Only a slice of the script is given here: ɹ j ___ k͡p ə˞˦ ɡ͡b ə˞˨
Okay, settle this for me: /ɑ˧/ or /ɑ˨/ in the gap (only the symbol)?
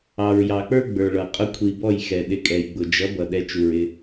ɑ˨